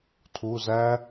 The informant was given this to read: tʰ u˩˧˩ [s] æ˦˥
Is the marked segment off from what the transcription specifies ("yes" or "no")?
yes